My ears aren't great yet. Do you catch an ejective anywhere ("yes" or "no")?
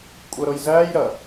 yes